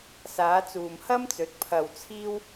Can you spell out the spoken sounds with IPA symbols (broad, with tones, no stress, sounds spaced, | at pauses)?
s aː˨˧ t͡s uː˨ m h ɐ˥ m t͡s ɵ˨˥ t̚ pʰ ɐ˧ w t͡sʰ iː˥ w